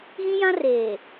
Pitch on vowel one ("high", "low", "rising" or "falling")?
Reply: high